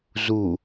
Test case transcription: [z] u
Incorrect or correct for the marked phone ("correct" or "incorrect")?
correct